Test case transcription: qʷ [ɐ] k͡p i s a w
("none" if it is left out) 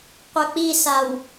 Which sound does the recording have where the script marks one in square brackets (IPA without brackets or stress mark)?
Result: ɐ